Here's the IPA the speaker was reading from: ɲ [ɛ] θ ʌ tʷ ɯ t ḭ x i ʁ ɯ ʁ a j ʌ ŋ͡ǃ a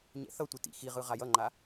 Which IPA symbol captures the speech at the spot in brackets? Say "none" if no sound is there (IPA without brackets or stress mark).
ɛ̰